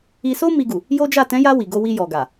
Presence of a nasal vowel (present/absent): present